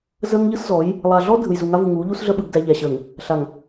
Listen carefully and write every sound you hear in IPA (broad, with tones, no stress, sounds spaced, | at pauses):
z əː˦ ŋ ʎ ɯ˦ s z ɔ˨˦ j | lˠ a˨ ɮ ɔ˦ dʱ ɯ˨ j z u˨ ŋ a˦ v u˨ ŋ uː˨˦ ʎ u˦ s ɮ ə˦ ɓ ɯ˨ ɡ d æ˦ ʎ æ˨ ɕ əː˨ ŋ | ɬ a˨ ŋ